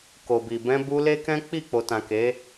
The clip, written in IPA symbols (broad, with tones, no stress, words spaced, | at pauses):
ko˨ bi˨ bɛ̃˧bu˧le˦kɛ̃˦ k͡pi˦˨ k͡po˨tã˨ke˨˦